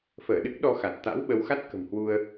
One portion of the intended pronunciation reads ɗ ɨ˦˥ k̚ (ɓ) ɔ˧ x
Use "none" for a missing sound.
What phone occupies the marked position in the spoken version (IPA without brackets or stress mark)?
ɗ